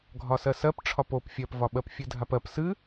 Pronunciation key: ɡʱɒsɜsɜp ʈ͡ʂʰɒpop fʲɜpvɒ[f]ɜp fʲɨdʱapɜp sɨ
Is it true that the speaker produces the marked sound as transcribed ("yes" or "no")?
no